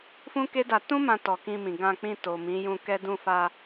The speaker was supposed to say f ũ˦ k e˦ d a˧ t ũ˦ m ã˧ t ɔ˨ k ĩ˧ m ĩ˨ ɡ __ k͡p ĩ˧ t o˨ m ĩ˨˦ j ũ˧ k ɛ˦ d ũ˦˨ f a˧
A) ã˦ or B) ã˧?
B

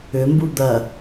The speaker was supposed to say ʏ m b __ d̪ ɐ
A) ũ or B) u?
B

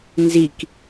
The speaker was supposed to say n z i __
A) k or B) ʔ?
A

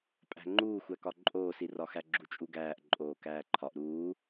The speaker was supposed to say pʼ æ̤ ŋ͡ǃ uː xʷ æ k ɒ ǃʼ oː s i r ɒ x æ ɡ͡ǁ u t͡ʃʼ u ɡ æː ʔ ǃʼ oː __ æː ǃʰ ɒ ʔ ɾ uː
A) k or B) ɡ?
A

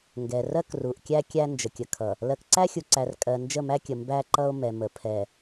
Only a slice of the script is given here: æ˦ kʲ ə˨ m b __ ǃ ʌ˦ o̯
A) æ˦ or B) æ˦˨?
A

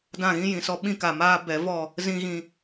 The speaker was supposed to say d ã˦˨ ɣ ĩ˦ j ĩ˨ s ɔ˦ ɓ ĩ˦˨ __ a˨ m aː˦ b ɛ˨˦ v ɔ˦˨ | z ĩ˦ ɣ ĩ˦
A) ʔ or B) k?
B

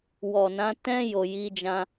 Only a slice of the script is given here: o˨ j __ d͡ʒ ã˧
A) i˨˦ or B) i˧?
A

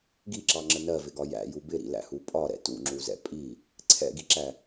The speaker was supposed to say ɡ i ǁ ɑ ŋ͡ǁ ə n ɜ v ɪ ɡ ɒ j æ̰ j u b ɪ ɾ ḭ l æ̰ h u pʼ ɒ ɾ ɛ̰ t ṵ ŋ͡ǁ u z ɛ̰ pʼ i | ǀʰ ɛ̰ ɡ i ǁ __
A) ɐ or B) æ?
B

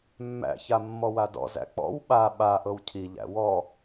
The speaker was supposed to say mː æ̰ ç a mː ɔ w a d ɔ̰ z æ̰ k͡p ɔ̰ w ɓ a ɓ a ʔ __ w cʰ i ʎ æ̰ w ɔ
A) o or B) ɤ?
B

